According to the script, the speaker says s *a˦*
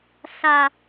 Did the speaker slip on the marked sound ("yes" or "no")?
no